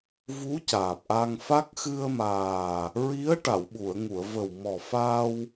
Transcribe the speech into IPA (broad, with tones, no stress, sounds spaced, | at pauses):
v u˧˥ c aː˨˩ p̚ ʔ a˧ ŋ f a˦˥ k̚ x ɨ˧ ə̯ m aː˨˩ | ɹ i˧˥ ə̯ ʈ a˨˩˨ w ɓ u˨˩˨ ə̯ ŋ u˨˩˨ ə̯ v ə˨˩ w m ɔ˨˩ f a˧ w